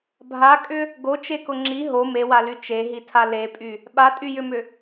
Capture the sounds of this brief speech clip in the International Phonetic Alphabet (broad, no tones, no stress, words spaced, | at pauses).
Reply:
bʱakʼʏ | ɡot͡ʃekʊ ŋ͡ǁi ɦo mewaly t͡ʃeɦitʰa lepʼy | ɓatʼyjʏmʏ